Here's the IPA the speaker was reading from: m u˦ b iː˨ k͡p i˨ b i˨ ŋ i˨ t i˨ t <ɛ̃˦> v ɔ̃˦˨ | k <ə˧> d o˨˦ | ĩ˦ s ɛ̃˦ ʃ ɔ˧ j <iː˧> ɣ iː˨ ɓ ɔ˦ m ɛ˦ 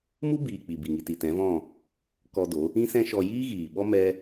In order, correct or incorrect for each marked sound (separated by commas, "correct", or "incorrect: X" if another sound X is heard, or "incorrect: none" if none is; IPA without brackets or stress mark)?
incorrect: ɛ̃˨˦, incorrect: ɔ˧, incorrect: iː˦